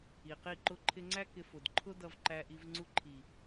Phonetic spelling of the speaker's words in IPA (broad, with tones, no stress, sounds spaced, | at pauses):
i˨ q i˦˨ ǃ ʊ˦ ǃʰ ɪ˦ ŋ͡ǀ æ˦ k ɪ˧ f ʊ˨ d ǃʰ ʊ˦ d ʌ˧ v ǃ æ˧ ʔ i˧ v ŋ͡ǀ u˧ ǃʰ i˨